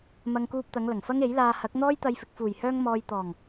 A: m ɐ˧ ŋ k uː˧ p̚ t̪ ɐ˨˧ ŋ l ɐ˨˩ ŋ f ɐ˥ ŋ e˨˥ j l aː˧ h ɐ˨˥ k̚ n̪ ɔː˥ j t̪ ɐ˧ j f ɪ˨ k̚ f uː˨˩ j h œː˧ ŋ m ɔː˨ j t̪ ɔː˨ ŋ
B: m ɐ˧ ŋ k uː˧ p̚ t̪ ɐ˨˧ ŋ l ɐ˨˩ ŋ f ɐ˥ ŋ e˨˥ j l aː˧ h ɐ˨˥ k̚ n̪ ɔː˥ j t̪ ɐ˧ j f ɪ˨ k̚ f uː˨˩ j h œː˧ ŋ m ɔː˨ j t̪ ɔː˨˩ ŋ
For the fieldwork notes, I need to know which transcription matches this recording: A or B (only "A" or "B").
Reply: B